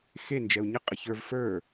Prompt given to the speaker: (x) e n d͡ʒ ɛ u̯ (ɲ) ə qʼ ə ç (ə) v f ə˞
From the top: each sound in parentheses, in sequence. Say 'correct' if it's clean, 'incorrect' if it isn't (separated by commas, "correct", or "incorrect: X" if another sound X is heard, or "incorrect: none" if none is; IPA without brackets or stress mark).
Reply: correct, correct, incorrect: ə˞